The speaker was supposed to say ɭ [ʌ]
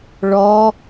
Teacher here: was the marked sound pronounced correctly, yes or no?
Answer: no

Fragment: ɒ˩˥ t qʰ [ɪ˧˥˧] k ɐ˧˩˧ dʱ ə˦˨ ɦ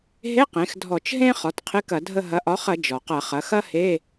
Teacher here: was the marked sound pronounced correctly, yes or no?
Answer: yes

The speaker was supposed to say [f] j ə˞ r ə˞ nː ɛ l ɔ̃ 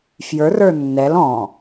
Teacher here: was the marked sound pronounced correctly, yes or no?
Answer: yes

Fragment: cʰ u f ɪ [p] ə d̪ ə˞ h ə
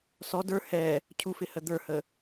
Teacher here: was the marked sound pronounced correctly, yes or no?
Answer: no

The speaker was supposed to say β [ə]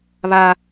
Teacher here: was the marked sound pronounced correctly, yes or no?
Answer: no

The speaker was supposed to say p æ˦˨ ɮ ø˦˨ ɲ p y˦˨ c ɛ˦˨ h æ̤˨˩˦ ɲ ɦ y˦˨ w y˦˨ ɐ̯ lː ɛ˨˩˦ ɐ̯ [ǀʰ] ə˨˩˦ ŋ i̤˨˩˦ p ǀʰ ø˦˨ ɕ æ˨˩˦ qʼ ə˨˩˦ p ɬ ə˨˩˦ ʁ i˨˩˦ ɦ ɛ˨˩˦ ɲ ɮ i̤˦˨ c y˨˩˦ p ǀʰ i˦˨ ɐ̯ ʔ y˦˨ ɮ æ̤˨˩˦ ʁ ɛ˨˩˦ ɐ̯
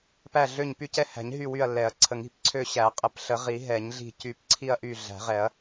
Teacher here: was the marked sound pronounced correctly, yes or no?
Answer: yes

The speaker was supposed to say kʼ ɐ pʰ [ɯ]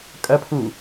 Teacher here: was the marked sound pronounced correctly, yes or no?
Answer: no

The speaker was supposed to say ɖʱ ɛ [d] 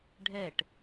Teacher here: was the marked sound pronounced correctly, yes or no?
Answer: no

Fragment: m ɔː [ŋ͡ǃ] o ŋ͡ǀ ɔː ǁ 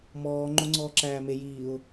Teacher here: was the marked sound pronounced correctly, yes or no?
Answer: yes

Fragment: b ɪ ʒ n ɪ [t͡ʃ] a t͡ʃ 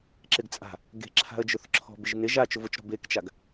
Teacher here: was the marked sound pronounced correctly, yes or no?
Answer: no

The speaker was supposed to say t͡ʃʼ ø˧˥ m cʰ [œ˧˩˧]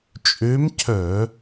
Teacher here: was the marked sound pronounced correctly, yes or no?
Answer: yes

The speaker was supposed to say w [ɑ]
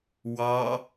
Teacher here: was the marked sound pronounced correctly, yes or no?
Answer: yes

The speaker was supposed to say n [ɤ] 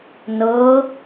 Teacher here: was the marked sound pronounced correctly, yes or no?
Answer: yes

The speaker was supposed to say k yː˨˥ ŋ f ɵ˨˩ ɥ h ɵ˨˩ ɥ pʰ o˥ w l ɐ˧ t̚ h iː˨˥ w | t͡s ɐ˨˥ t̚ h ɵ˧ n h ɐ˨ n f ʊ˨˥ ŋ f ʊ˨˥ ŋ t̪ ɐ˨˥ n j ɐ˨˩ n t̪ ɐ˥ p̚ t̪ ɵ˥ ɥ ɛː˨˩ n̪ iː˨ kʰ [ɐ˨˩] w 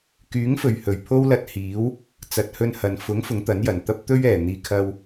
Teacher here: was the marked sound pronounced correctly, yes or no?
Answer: no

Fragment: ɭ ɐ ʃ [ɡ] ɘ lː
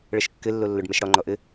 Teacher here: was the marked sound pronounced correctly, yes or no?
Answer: no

